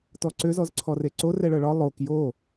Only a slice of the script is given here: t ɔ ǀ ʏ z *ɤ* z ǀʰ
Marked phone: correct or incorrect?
incorrect